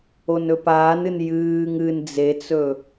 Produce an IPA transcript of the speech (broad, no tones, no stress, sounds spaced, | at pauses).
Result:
o n ɵ p aː n ɨ n j ɨː ŋ ɨ n d͡z e t͡s ɵ